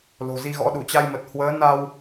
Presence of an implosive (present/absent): present